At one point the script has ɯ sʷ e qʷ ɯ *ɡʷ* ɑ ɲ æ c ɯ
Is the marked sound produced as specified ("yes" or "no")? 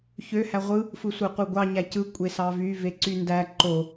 yes